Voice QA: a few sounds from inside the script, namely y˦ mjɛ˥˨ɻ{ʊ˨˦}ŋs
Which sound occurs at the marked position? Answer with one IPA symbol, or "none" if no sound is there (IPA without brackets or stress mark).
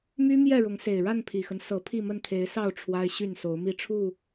ʊ˨˦